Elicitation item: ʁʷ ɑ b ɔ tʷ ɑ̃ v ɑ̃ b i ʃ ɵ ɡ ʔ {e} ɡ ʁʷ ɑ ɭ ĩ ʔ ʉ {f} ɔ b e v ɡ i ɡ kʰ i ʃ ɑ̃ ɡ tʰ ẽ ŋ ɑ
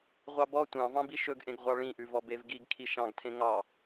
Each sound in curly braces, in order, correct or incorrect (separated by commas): incorrect, incorrect